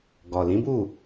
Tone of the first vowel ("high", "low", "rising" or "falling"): low